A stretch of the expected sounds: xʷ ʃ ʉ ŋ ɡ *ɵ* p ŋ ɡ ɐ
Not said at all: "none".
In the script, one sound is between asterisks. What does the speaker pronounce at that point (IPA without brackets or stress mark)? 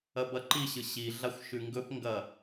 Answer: ɵ